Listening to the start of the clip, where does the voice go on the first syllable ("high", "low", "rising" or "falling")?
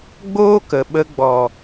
high